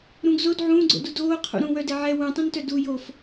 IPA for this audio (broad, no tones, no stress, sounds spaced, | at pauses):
ɾ ũ ɡ z o d ʕ ũː ɡ͡ǀ o̰ d u d oː qʰ ṵ ɾ ũ w œ d ɛ ʕ ɛ w ũ tˤ ũ n t œ d u j o f